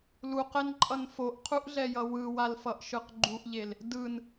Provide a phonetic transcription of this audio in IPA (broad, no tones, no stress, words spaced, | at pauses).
luqɛnǃʼʌn foʔqʰuʔɮɛjʌ wɯwalfʌʔʃɯq ɡ͡ǃuʔʎel | dɯn